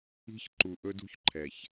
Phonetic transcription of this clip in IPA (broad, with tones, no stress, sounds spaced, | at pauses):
i̤˦ ç ǃ u˨ ʔ ɵ˦ d ṳ˦ ç ǃʰ ɛ˨ ç